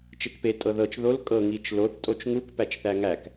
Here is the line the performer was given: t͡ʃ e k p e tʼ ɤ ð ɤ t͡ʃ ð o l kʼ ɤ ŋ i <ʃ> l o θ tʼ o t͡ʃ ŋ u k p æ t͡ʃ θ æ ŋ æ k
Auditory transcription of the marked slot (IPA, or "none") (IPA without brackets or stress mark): t͡ʃ